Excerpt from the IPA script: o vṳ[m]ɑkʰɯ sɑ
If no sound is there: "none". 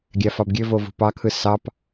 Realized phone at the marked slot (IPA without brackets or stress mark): p